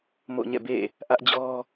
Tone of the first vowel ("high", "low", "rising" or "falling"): falling